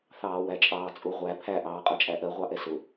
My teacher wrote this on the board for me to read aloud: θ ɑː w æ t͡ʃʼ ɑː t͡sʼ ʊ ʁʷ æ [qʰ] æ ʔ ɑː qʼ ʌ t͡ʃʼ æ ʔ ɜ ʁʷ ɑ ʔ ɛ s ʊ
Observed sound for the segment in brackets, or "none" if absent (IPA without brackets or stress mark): pʰ